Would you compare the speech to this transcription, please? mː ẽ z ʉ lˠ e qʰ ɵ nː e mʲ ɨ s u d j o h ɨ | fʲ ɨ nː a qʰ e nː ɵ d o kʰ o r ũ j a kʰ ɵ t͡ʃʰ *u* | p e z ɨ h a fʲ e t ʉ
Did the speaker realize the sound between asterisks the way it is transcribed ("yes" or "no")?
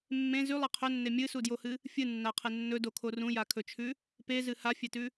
no